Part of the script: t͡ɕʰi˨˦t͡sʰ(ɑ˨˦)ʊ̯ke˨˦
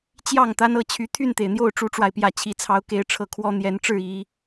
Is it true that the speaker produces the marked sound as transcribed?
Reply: yes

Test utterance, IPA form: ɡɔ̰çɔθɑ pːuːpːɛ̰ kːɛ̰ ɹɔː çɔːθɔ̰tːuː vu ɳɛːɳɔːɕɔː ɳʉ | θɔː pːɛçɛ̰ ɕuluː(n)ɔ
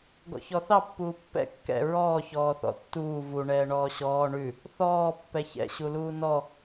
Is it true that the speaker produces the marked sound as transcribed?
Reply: yes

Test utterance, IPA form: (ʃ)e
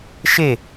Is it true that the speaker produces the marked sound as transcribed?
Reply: yes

